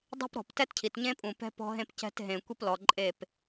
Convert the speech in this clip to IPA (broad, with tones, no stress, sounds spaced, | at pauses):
dˤ ɛ̤˦ p ɾ ɔ̤˨ p t ɛ˦ t cʰ i˨ t ɲ ẽ˦ pʼ ũ˨ p ɛ̤˦ p ɔ̤˦ ɦ ẽ˦ p c ɛ̤˦ t ɦ ẽ˨ kʷ i˦ p l ɔ˨ ǃʼ e˦˨ p